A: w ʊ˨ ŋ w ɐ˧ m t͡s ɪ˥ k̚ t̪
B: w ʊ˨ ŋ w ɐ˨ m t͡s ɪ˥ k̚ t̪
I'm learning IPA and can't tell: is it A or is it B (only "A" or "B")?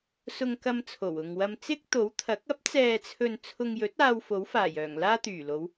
A